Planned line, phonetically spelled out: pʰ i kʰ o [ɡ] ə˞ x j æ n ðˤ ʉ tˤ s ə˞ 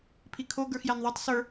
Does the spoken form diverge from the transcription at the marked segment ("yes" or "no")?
no